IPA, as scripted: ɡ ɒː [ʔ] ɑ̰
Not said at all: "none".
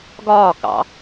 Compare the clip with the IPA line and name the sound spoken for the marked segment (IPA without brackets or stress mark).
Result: k